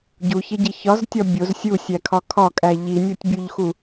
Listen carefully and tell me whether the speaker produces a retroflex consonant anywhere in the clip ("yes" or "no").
no